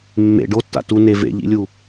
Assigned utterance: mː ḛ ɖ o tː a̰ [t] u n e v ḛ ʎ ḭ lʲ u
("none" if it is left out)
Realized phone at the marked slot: t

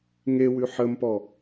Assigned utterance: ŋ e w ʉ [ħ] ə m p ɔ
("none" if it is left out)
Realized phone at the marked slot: ħ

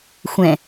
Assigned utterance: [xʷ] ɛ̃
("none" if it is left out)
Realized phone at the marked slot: xʷ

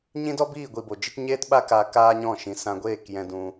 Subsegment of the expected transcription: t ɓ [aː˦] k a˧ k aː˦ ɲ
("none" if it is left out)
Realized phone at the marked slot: a˦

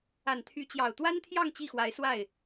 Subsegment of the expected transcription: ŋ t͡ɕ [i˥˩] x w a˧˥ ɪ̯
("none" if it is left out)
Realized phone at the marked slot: i˥˩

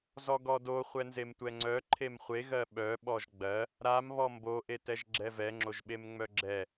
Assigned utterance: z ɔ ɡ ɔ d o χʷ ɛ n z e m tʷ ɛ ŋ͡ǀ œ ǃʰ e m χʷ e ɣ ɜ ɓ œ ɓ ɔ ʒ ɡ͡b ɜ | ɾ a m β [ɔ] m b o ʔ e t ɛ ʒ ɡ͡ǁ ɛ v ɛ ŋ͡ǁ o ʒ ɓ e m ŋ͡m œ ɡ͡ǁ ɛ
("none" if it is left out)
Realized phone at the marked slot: ɔ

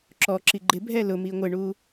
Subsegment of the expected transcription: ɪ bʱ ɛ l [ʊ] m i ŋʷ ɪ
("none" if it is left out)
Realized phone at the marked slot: ʊ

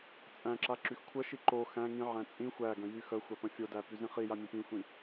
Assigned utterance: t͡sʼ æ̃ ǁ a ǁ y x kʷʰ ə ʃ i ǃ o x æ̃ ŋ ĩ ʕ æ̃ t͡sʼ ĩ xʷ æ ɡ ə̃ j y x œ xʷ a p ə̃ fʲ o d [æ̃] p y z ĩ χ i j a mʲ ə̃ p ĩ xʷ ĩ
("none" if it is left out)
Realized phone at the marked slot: æ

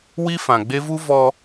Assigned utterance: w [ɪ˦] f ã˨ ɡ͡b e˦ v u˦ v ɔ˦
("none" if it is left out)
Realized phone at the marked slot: i˦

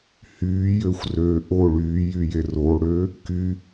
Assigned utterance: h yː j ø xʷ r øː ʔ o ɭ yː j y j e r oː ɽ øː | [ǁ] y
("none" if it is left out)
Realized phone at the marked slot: k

